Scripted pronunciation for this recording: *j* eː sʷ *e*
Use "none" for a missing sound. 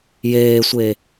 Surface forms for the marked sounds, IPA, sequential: j, e

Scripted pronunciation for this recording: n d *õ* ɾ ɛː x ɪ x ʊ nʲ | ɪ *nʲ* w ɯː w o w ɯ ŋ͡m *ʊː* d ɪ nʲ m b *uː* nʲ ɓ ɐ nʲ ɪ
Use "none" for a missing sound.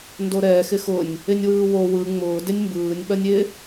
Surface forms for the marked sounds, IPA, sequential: o, nʲ, ʊː, ɯː

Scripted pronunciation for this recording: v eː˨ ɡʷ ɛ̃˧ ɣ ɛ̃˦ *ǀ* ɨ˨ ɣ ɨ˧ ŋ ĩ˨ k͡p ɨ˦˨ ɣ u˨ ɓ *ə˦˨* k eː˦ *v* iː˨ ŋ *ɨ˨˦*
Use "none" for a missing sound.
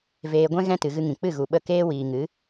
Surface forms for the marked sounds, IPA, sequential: t, ə˦˨, w, ɨ˨˦

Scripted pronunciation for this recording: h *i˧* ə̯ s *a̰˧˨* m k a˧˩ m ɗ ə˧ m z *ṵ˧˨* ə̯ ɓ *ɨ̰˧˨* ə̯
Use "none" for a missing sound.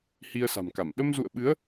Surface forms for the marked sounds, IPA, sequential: i˧, a̤˨˩, ṵ˧˨, ɨ˨˦

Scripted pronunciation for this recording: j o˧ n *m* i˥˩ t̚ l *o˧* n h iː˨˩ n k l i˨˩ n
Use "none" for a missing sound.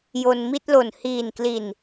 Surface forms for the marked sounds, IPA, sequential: m, o˨˩

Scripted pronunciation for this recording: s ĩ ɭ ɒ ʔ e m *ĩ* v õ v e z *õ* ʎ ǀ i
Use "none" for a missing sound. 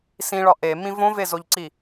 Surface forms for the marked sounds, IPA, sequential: ĩ, o

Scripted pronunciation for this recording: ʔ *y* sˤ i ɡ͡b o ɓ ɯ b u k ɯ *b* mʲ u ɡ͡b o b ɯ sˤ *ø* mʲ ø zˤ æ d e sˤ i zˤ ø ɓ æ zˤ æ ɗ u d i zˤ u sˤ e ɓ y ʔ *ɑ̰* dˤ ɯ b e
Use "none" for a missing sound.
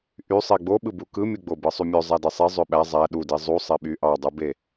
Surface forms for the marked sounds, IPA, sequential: y, none, y, ɑ

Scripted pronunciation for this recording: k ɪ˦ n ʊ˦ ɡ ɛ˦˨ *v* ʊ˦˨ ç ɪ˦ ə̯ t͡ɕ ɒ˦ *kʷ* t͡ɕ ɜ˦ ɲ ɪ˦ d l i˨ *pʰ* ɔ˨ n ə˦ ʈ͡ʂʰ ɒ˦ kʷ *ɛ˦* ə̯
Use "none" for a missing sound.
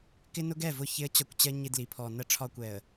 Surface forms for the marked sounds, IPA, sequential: v, kʷ, pʰ, ɛ˨

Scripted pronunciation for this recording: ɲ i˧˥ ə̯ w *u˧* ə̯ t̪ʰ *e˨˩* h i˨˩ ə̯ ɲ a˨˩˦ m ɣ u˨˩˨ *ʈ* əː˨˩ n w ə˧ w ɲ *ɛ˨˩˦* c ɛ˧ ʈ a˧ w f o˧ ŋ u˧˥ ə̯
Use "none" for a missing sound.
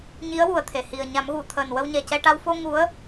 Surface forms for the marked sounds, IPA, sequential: u˨˩, e˨˩, t̪ʰ, ɛ˨˩

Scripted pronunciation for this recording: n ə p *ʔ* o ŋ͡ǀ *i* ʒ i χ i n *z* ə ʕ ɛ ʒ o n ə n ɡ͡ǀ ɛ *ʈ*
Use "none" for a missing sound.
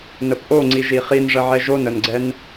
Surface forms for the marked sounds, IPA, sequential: ʔ, i, ʐ, n

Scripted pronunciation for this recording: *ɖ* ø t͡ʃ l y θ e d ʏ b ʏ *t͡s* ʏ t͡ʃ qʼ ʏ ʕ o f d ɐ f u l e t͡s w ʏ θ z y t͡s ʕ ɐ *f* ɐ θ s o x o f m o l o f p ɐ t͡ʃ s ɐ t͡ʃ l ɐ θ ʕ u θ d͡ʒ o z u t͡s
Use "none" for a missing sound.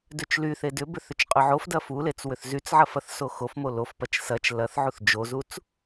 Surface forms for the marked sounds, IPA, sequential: d, θ, f

